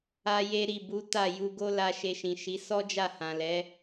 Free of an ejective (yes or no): yes